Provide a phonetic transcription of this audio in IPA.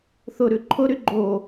θ ʊ ɾ ʉ ǃʰ ʊ ɾ y ɡ͡ǃ o

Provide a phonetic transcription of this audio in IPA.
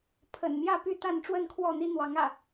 pʰ ə̰˨˩ n m j ä˥˨ p y˥˨ t̪ a˥˨ n ʈ͡ʂ w ə˥˨ n kʰ w ɔ˥˨ n̪ i˦ n̪ w ɑ˨˦ ŋ ä̰˨˩

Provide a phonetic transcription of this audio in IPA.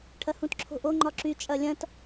ʈʰ ɐ h ũ t ǁʰ o̤ ʔ o ŋ͡ǃ ɒ ǁ y t͡ʃʼ ɐ lʲ ɐ̃ t

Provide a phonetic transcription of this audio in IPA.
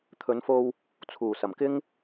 t̪ʰ ɵ˨˧ n f o˧ w | t͡sʰ uː˨˩ s ɐ˨˩ m k ɪ˥ ŋ

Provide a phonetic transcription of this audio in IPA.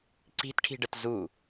ǀ i̤ t ʈʰ i̤ ɖ ə t z u

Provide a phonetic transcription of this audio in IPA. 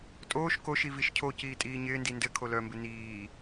tʼ oː ʃ k o ʃ i v i ʃ cʰ o c iː tʼ iː ɲ ɪː n d i n d ɘ kʰ o l œ m b ɪ n iː

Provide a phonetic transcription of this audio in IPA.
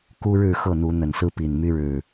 k u˦ ɻ ɻ̩˥˨ x ɤ˥˨ n̪ u˨˦ n̪ ə˨˩ n s ɹ̩˦ p i˨˩ n m y˦ ɻ ɻ̩˨˩

